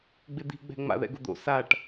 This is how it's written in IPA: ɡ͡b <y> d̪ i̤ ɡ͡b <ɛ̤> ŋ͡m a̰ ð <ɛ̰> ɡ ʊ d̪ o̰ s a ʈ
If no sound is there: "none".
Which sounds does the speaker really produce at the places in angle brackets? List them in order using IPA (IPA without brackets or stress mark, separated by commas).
ɪ, ɛ̤, ɛ̰